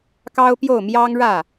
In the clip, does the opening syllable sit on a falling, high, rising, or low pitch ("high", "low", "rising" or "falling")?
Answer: high